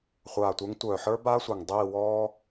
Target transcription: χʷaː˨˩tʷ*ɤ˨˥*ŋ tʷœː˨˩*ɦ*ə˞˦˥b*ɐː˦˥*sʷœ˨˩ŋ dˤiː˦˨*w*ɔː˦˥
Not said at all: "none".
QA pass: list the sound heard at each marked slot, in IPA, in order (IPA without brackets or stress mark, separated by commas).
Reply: ə˞˨˥, ħ, aː˦˥, w